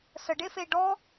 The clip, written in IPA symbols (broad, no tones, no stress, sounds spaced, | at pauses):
s ə ɖ e f e ɖ ɔ